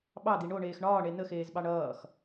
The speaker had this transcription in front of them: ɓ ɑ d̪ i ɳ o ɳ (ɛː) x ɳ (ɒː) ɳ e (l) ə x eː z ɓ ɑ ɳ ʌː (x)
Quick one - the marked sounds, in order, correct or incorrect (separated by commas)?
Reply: incorrect, correct, incorrect, correct